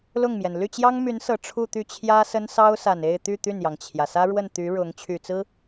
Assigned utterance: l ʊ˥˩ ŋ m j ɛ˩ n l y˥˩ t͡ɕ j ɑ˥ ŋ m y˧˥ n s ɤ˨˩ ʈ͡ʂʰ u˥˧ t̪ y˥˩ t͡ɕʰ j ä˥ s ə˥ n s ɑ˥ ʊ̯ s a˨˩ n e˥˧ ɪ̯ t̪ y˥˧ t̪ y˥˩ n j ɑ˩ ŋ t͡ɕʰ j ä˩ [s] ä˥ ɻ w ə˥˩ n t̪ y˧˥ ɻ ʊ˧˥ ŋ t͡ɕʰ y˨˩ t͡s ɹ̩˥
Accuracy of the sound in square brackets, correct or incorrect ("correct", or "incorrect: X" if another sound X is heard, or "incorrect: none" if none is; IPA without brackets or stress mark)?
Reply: correct